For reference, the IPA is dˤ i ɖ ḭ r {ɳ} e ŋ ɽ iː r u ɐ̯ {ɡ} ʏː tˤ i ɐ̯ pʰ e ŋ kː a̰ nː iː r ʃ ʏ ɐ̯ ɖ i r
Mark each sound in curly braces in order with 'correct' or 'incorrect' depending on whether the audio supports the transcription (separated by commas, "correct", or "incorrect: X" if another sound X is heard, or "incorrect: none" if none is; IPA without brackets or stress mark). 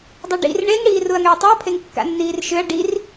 correct, incorrect: ŋ